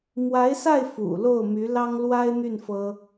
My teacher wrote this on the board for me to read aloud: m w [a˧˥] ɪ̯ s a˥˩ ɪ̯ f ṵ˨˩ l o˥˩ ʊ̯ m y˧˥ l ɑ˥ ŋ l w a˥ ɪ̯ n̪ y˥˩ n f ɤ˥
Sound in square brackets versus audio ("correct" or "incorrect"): correct